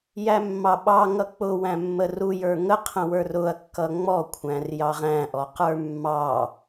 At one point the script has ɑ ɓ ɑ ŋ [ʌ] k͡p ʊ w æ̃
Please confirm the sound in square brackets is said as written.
yes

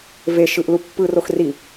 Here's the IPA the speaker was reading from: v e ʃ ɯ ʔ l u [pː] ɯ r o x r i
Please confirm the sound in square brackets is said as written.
yes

